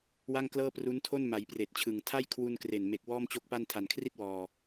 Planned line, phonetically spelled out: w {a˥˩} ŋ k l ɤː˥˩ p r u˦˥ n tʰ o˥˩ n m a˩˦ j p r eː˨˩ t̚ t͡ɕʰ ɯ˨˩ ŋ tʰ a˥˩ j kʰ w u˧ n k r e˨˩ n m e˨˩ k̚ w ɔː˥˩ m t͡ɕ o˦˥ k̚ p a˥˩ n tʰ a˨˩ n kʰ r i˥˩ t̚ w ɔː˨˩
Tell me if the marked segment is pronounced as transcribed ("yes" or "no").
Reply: yes